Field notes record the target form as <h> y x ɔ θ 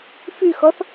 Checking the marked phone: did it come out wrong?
yes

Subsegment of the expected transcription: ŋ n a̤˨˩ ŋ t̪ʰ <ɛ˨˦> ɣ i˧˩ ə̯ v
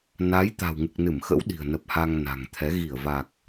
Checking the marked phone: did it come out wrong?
no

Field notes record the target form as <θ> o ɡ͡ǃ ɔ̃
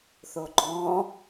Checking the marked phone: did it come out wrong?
no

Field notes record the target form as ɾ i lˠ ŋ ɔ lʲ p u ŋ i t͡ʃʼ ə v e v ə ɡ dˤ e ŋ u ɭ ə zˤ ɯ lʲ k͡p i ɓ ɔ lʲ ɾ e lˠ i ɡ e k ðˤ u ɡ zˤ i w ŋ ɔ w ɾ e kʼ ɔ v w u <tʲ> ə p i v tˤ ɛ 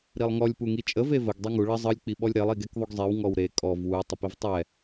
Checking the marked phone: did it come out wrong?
yes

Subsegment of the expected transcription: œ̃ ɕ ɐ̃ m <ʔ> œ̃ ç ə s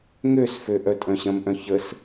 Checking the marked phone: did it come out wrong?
no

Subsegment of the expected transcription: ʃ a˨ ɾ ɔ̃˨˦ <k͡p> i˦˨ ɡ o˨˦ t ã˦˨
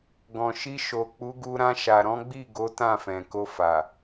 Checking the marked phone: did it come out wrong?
yes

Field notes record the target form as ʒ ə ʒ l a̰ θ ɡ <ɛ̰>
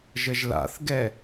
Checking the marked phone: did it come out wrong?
yes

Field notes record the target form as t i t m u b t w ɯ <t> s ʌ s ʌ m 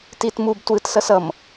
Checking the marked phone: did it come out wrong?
no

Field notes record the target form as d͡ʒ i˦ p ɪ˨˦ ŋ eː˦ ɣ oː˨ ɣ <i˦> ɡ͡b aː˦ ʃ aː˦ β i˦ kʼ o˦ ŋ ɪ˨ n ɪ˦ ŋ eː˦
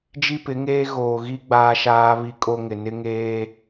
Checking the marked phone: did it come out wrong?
no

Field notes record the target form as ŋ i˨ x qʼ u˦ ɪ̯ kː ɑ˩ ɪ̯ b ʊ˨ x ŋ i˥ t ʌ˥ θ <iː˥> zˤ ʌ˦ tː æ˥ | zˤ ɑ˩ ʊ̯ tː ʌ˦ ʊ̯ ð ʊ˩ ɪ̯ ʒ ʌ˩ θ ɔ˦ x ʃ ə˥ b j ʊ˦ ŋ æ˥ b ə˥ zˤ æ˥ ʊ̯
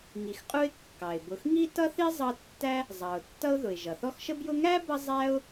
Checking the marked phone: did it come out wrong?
yes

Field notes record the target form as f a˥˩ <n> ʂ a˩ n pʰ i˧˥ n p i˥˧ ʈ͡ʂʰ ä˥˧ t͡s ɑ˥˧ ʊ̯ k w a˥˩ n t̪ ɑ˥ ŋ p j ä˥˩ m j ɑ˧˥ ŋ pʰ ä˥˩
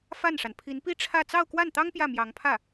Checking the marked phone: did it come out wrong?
no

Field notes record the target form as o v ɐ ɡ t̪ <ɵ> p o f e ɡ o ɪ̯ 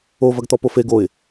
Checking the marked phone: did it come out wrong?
yes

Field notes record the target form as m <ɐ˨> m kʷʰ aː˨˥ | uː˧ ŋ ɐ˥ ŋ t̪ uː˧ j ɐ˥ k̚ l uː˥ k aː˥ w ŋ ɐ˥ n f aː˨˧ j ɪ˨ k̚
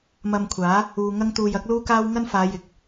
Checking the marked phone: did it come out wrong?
yes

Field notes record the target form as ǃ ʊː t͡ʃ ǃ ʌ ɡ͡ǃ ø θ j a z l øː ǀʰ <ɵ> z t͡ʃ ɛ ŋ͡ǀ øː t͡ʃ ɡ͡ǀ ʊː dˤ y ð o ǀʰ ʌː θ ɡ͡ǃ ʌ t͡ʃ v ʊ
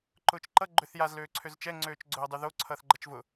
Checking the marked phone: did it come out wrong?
yes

